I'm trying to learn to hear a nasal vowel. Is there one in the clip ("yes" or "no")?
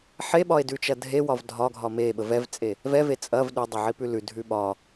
no